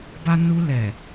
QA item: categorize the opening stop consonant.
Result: plain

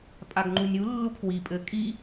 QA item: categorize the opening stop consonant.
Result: ejective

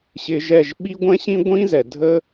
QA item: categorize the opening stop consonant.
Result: implosive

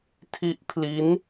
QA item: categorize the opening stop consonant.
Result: aspirated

